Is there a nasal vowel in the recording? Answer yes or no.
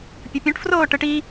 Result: yes